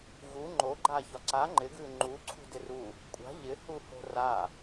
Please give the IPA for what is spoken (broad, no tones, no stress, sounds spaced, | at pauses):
ɣ u ŋ͡ǃ o ɡ͡ǃ a ç ɒ ǀ a ŋ͡ǃ ɪ ɡ ʉ ŋ͡ǃ u ǀʰ ṳ d ɪ r u | kʷʼ a̤ ʎ ɪ h u h o̤ r a